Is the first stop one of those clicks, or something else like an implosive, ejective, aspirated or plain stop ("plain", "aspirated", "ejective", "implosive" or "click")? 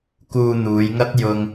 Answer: plain